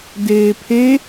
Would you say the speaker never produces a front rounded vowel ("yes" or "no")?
yes